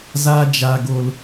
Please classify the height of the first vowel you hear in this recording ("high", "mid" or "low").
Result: low